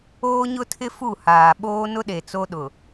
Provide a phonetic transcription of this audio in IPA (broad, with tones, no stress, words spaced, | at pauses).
oː˦ɲʊ˦tʰɪ˦ fu˦˨haː˨ ɓoː˦nʊ˦ɗe˨ t͡so˦ɗʊ˨